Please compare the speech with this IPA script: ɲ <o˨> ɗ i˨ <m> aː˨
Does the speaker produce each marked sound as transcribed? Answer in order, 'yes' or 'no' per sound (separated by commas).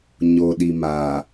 yes, yes